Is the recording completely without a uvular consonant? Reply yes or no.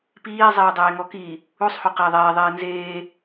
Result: no